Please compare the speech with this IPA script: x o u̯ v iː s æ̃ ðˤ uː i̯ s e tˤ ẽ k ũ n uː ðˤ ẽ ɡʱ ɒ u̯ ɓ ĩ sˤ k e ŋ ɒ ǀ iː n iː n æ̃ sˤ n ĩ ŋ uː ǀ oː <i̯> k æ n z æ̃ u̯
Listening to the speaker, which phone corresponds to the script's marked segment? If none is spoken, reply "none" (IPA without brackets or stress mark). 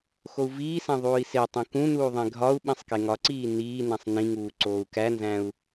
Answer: u̯